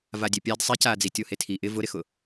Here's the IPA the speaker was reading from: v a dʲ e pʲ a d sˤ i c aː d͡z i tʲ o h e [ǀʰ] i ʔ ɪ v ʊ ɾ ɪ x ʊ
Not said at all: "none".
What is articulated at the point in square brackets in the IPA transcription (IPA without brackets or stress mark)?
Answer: tʰ